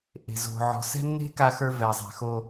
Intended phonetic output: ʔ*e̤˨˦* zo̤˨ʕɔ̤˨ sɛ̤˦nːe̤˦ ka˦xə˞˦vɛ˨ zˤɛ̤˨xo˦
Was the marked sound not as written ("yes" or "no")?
yes